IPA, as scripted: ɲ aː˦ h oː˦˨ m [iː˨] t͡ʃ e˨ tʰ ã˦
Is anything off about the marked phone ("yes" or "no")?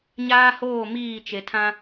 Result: yes